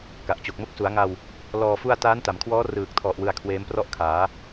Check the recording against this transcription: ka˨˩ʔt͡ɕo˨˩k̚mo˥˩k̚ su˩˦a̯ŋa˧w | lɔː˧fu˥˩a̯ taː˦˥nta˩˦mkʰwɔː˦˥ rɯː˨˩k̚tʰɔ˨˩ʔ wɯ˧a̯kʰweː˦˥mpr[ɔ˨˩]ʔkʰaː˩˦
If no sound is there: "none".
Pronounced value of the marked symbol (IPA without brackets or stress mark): ɔ˥˩